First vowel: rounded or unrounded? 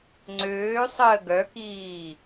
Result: rounded